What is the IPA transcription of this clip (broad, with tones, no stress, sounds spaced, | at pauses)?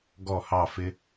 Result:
ɡ ɔ˥˧ h ɑ˥˧ f ɪ˥